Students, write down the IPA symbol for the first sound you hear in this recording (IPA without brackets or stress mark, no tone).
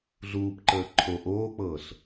ɮ